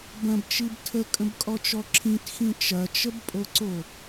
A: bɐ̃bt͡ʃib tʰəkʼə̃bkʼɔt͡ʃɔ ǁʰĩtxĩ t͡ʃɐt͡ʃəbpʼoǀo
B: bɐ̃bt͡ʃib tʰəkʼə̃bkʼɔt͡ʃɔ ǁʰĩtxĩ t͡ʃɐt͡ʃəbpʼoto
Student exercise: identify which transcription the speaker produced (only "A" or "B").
A